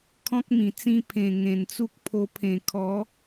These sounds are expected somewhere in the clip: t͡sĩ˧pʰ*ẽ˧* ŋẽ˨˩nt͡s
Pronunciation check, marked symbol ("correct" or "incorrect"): incorrect